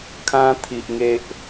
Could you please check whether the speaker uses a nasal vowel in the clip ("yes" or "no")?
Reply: yes